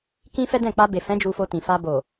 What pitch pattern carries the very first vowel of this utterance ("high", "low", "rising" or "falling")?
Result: high